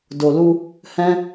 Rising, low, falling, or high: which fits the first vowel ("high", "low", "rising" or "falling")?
low